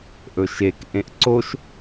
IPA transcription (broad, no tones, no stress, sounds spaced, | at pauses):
ʔ ɵ ʃ e k ʔ ẽ ʔ ǀ o ʃ